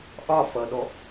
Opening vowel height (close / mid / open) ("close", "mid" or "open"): open